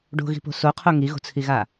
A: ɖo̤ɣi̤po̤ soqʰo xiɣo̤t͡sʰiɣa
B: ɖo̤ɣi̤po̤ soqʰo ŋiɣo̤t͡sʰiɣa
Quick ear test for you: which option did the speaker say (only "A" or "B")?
B